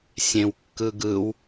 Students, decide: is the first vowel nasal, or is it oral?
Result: nasal